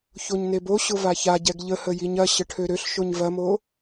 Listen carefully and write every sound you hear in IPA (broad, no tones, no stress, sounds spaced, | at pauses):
ç o ɲ n e b o ɕ ʊ v a ç a ɟ ɛ ɡ ʎ ə h ə j i ɲ ɐ ɕ ə ʈʰ ø ɾ ø ɬ ʃ o ɲ v ɐ m o